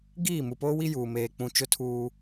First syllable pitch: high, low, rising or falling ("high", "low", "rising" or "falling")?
falling